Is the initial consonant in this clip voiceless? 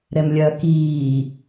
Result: no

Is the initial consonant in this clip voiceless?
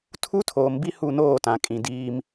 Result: yes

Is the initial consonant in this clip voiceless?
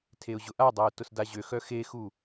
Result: yes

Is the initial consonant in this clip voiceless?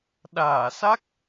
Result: no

